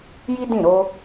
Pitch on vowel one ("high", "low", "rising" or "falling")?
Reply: high